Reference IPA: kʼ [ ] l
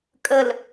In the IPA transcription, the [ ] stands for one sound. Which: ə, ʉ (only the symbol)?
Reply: ə